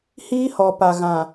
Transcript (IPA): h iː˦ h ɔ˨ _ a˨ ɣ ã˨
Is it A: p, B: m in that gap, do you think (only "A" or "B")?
A